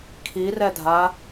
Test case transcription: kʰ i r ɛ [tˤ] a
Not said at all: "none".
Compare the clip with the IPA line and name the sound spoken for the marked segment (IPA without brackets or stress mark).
dʱ